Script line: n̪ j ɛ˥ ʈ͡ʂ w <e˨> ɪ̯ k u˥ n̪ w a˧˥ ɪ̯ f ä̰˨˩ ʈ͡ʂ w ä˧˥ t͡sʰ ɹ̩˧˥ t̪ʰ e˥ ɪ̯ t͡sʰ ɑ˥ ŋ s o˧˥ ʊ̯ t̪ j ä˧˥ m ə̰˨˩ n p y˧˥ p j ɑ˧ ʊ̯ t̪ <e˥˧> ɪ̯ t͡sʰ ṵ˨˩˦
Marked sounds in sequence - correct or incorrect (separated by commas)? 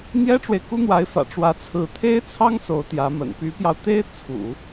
correct, incorrect